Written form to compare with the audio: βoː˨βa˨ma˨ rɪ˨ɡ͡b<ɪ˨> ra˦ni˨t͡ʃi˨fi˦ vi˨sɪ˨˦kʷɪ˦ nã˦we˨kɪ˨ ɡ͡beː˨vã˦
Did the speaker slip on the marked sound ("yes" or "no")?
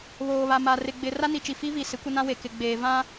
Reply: no